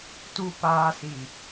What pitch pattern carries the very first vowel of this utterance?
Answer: low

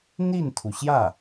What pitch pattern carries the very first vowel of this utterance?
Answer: falling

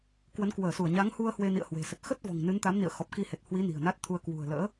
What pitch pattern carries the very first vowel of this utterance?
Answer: rising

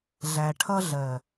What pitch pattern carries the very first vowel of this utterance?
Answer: low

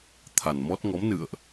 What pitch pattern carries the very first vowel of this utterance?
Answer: low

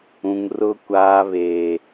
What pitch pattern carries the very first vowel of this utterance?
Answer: high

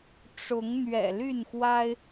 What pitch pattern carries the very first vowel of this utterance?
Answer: rising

